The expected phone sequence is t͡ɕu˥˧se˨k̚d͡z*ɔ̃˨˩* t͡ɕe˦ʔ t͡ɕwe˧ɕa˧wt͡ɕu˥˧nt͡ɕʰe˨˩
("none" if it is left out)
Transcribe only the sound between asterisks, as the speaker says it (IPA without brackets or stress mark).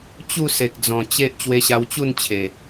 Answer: ɔ̃˨˩